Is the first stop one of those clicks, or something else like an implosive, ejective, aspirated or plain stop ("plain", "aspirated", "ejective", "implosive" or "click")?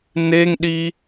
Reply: implosive